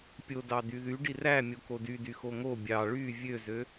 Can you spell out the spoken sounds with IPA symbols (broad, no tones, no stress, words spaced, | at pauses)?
pʲodɑ d̪yðy ɖiræ mʲokodydy xoŋo bʲɑ ɭy vʲøzø